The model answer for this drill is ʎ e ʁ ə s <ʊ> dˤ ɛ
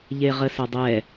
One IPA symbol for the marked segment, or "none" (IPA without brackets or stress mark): ʊ